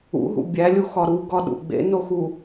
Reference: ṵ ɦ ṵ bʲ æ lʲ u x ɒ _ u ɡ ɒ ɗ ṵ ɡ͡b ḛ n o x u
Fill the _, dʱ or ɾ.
ɾ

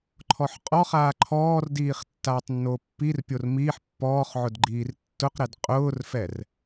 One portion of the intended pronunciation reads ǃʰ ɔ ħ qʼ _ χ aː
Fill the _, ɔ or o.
ɔ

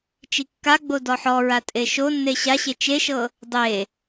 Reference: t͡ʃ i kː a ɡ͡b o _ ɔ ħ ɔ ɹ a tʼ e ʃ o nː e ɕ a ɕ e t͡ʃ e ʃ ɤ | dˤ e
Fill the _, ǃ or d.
d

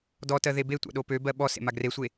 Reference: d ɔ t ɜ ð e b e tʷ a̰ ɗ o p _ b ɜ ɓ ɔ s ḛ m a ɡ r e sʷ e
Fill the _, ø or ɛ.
ø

